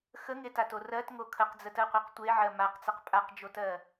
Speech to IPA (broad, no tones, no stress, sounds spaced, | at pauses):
x ə ŋ e t a t o r ɜ t ŋ o kʰ ə q d͡z ə t ɜ qʷ ɜ q tʷ e ʕ ɜ m a q t͡s ɛ q pʼ a q d͡ʒ o t ɜ